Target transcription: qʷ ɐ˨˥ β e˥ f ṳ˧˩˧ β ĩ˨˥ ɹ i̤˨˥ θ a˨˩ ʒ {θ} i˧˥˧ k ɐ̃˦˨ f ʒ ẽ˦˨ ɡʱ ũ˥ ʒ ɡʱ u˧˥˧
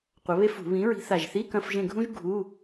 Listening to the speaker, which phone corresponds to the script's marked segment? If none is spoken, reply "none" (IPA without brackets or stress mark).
θ